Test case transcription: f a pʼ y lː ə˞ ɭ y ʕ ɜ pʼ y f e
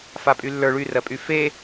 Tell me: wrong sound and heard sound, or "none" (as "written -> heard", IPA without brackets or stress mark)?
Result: ʕ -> r